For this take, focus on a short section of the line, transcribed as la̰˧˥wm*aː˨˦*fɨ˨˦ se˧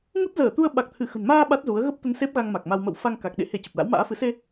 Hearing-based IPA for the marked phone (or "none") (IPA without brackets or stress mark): a̰ː˧˥